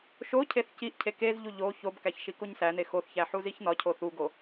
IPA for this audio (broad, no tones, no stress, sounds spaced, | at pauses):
ʃ o cʰ e θ c i ʔ cʰ e k e z ʎ u ʎ o ç o b k æ ç ʃ i k o ɲ s æ n e x o θ ç æ ħ u z i ç n ɒ cʰ o θ u ɡ o